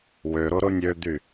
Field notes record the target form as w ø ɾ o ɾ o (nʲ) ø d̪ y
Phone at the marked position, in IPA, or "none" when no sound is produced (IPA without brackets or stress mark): nʲ